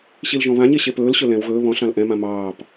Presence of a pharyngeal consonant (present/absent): absent